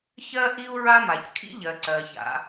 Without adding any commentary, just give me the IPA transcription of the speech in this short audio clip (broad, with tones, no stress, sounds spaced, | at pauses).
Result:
ç ɜ˥ ʔ i˥ u̯ ɹ a˥ m a˩ c kʰ ḭ˥ ʎ ɜ˩ ǀ ɜ˩ ç a̰˩